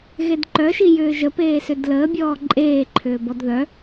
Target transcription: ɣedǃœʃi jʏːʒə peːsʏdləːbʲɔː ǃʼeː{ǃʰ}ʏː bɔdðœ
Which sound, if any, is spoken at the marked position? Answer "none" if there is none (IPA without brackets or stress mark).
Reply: ǃʰ